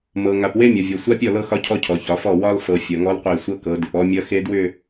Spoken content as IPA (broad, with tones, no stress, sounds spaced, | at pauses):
m ɤ˨ ŋ a˨ p w e˦ mʲ ʌ˨ vʲ ɔ˨ sʷ a˦ pʲ ɔ˦˨ l ɤ˦ x ɒ˦ cʰ ɔ˦ cʰ ɔ˨ ç ɒ˨˦ f ɔ˦˨ w ɒ˦ l f ɤ˨ fʲ ʌ˨ ŋ ɔ˦ l qʷ e˦˨ sʷ ɤ˦ k ɤ˨˦ d ʏ˨ p ɔ˦ mʲ ʌ˦ x e˦ d w ʏ˦˨